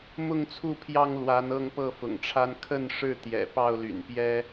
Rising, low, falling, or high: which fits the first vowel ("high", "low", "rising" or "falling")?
falling